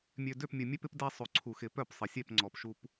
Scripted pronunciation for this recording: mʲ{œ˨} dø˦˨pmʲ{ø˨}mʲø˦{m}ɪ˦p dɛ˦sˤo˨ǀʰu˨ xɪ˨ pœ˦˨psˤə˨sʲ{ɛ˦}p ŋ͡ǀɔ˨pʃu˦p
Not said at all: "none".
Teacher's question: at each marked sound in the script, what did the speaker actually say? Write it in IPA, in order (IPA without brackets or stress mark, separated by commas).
ø˨, ə˨, p, ɛ˦˨